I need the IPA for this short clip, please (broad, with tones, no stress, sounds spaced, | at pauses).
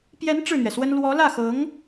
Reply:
p j ɛ˧˥ n ʈ͡ʂ ɻ̩˥˩ n̪ ɥ ɛ˩ s w ə˥ n l w ɔ˧˥ l ä˥˩ x ɤ˧˥ ŋ